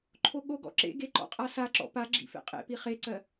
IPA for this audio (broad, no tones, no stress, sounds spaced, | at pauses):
ǃʰ o ɠ o ɡ ɔ̰ ǁ ḛ ɡ e ǃ ɔ̰ qʼ a s a ǁ ɔ̰ p a ɡ͡ǁ ḭ f ḛ qʼ ḛ p i χ e ǀ ɜ